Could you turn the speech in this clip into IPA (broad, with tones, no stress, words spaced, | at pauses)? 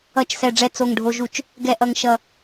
ʌ˧˩˧t͡ʃsɛ˨˩ ɖ͡ʐɛ˨˩ t͡so˨˩ŋ ɖʱo˨˩ʒu˧˩˧t͡ʃ | ɡɛ˨˩ʔʌ˨˩ŋʃʌ˨˩